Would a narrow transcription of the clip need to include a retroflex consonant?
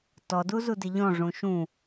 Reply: yes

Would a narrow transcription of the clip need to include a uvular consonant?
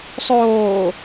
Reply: no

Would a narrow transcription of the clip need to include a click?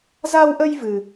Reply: no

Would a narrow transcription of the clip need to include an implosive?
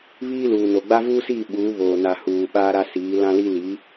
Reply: yes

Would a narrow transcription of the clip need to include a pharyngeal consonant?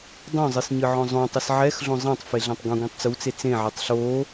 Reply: yes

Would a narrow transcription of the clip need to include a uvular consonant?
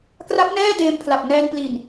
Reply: no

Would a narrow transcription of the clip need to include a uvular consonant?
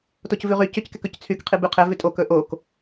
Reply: yes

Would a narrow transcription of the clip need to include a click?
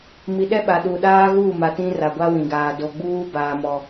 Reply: no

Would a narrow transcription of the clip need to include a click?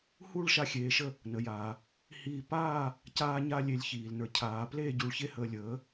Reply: no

